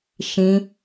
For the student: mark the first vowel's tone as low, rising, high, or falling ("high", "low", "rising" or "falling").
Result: high